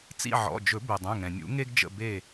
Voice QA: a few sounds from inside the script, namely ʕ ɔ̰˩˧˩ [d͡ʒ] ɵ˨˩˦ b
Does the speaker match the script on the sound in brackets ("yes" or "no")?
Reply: yes